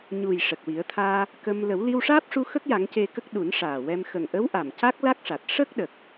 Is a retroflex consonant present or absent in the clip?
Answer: present